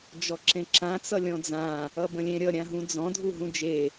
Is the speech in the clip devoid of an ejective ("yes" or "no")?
yes